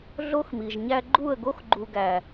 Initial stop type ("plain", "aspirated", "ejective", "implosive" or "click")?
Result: click